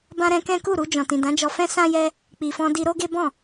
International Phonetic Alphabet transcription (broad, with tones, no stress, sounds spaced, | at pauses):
b ã˦ ɾ ɛ̃˦ k ɛ̃˦ k u˦˨ ɾ u˧ d͡ʒ ɔ̃˨ t ĩ˨ d ã˨˦ d͡ʒ ɔ˧ f ɛ̃˦ s ã˦ j ɛ˦ | k͡p i˨ f ɔ̃˧ d i˧ ɾ o˦ ɡ e˦ b ɔ̃˦˨